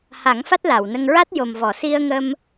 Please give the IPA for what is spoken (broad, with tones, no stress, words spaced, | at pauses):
ha˨˩˦ŋ fa˦˥t̚la˨˩˨wnə˧ŋ ɹa˦˥t̚jo˨˩m vɔ˨˩˨si˧ə̯ŋə˧m